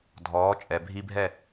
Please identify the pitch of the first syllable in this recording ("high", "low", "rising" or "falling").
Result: rising